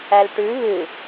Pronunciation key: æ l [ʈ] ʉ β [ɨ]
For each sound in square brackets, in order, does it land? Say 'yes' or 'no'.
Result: yes, yes

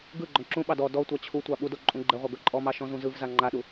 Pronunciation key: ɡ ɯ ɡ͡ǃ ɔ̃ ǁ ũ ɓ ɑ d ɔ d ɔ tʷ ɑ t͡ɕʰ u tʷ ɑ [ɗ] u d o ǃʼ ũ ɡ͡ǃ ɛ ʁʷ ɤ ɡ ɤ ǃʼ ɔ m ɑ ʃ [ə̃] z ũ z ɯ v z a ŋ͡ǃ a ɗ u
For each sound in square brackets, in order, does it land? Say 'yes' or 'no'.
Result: no, no

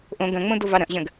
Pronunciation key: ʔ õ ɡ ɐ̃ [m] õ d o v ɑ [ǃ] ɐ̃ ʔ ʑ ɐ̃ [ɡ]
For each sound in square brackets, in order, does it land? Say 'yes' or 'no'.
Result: no, no, yes

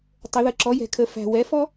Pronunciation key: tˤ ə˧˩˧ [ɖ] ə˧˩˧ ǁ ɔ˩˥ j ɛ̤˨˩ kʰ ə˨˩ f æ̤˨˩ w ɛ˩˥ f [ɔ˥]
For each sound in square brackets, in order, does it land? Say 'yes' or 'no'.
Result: no, yes

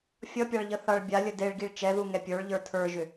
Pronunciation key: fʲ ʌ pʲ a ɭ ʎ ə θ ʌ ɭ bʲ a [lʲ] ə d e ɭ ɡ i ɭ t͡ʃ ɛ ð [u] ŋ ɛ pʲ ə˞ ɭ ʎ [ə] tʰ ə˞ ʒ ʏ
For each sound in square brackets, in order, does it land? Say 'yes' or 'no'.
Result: yes, yes, no

